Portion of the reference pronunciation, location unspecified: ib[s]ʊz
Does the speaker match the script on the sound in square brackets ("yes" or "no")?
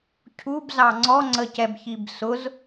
yes